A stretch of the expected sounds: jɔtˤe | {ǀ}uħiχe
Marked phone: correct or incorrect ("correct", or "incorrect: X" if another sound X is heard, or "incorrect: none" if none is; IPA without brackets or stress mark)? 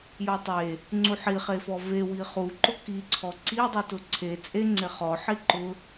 incorrect: ŋ͡ǀ